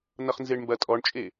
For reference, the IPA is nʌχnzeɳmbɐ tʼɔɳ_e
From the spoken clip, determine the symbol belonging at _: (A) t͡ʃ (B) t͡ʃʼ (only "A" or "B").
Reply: B